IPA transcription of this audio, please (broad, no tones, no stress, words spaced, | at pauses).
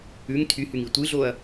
ʉŋ tʰyhyŋi tʷɨɮoɐ̯